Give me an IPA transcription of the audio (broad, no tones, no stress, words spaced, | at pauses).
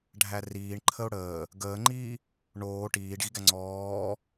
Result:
ɖʱæriːɳ ǃʰəʊ̯ɽəː | ɡəːŋ͡ǃiː | ɳoː ʈiːɖɣiɡæ ŋ͡ǀɔː